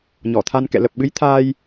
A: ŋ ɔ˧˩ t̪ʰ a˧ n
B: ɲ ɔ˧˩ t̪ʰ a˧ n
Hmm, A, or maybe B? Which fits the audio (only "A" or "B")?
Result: B